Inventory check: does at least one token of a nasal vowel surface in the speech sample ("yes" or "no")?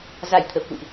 no